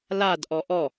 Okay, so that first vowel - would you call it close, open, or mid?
open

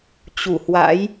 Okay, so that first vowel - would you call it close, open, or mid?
close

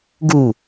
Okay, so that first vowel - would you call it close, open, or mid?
close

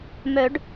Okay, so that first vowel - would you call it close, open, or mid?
mid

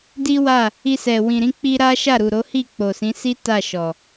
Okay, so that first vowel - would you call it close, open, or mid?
close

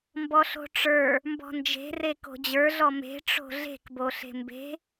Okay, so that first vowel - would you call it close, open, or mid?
mid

